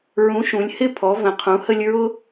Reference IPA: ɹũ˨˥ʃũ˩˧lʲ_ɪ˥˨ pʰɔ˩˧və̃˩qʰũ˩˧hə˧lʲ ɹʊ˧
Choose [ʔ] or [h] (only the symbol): h